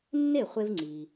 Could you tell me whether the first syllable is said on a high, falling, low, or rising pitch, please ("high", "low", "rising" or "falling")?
falling